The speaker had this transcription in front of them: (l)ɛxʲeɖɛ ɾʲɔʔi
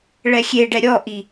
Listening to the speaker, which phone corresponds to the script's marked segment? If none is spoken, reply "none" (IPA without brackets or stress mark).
ɭ